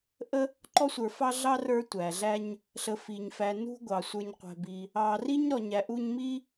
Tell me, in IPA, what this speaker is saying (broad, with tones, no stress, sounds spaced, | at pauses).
ʔ ə˥ | ǃ ɔ˦ sʷ ə˞˨ f ɑ˦ ɮ ɑ˦ r ə˞˦ tʷ æ˩ ɮ æ˦ ɲ | ɬ ə˨ f i˩ ɲ f æ˨ n ṳ˦ ɡʷ ɑ˩ sʷ ə˞˨ ɲ qʷ æ̤˨ b i˨ | ɑ˦ r i˥ ɲ ɾ ɔ˨ ɲ æ˨ ʔ u˦ ɲ m i˥